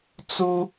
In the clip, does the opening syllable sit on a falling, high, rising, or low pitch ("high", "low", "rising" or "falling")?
high